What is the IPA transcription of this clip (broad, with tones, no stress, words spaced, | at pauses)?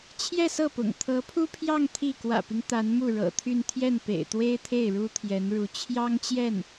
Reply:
t͡ɕʰjɛ˥˧sɤ˥˩pʊ̰˨˩ŋ t̪ʰɤ˧˥pʰu˥pʰjɑ˥˧ŋ t̪ʰi˥˩ kwä̰˨˩pi˦ŋ t̪a˧˥nmu˥˩ɻɤ̰˨˩t̪ʰy˥˧n t̪ʰjɛ˥˩npḛ˨˩ɪ̯t̪we˥ɪ̯t̪ʰe˥˩ɪ̯ ɻu˥t̪ʰjɛ˧˥nɻu˧˥ t͡ɕʰjɑ˥ŋt͡ɕjɛ˥˩n